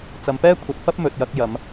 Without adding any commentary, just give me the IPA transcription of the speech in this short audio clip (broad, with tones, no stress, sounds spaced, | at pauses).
t͡s ɐ˨˧ m p ɛː˥ kʷʰ ɐ˨˥ t̚ f ɐ˥ p̚ m ɵ˨ t̚ j ɐ˧ k̚ j ɐ˨˧ m